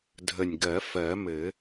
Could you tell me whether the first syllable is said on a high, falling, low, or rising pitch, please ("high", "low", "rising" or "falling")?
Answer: low